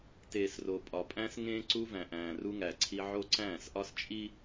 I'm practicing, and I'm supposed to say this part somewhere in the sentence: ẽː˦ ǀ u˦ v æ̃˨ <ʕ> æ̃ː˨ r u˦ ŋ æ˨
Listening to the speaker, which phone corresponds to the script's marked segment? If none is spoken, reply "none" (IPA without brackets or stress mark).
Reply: ʔ